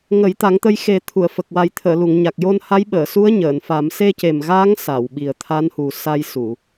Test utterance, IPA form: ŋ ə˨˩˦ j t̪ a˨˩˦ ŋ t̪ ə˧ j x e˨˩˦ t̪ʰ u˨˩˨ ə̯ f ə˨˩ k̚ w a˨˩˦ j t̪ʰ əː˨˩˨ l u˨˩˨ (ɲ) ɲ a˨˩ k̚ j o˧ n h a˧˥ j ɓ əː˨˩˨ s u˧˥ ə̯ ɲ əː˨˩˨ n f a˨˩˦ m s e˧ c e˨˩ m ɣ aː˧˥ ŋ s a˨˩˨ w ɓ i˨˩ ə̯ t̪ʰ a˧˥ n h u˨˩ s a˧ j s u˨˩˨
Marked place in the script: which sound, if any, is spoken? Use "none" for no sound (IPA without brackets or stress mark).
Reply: ŋ